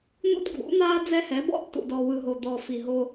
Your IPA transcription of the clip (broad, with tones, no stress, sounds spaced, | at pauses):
n̪ ṵ˦ d ɡʱ ṵ˨˦ n̪ aː˦ d͡z ɛ˦ h ɛ˨˦ b ɔ̰˦ tː ṵ˨ d ɔ˨ w ɯ˨ ɦ o˨ d̪ ɔ˨ f i˨ ɦ o˦